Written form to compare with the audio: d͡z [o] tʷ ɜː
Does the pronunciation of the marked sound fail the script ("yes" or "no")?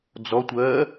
yes